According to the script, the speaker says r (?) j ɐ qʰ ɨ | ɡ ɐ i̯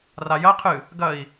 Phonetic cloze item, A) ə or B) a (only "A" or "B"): B